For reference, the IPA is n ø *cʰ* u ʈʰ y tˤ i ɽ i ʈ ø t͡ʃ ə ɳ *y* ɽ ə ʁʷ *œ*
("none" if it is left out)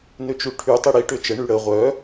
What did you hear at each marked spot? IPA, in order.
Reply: t͡ʃ, y, œ

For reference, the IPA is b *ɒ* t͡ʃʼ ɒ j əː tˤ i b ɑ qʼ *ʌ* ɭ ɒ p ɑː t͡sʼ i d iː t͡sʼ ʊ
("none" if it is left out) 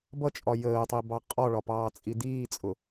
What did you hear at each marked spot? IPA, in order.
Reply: ʌ, ɒ

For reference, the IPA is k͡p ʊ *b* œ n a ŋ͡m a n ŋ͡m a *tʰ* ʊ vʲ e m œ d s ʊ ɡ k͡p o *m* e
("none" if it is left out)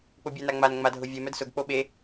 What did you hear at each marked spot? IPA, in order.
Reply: bʲ, dʱ, ɓ

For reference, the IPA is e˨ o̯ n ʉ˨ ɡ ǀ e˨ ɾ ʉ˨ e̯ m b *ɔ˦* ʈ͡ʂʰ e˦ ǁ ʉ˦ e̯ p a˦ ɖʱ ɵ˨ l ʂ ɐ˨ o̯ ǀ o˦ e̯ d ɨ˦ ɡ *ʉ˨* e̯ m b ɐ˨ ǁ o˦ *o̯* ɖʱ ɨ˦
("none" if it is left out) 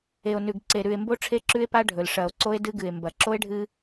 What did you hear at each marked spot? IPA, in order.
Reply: o˦, ɨ˨, e̯

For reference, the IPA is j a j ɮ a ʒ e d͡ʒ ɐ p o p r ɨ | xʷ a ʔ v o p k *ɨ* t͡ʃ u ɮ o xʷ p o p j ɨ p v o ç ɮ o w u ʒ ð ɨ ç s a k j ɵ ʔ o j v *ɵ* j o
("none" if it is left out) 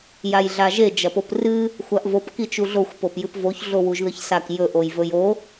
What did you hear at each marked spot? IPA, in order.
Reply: i, ɵ

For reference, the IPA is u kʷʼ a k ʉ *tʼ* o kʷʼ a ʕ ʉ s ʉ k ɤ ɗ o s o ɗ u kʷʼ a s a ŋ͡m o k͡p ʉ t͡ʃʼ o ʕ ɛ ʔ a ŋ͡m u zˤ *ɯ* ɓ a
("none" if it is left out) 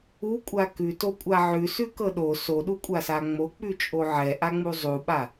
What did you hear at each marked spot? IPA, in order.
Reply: t, u

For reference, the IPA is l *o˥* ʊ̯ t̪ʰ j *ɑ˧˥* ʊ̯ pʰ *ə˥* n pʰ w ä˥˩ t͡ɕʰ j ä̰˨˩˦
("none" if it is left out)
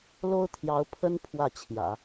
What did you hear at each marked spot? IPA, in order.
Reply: o˥, ɑ˧˥, ə˥

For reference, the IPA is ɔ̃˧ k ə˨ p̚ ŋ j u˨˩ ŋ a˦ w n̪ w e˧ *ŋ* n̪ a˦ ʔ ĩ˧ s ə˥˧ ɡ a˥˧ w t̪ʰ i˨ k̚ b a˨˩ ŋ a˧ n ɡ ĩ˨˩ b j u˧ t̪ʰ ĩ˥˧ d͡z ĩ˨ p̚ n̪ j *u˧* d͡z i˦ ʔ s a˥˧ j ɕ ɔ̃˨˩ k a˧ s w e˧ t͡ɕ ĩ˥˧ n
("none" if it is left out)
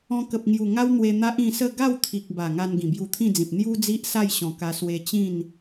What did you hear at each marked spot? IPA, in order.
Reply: none, u˦

